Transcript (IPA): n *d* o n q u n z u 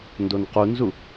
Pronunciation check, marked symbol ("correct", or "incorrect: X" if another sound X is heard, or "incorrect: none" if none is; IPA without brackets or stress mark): correct